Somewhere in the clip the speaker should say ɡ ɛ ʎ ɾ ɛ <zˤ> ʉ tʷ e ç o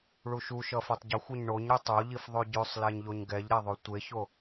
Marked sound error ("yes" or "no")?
yes